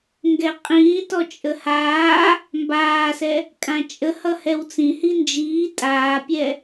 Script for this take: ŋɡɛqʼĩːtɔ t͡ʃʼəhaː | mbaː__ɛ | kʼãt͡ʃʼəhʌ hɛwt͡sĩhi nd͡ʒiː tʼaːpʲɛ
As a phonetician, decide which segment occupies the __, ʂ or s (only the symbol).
s